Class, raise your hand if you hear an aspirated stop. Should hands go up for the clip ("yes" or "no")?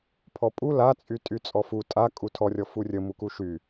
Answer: yes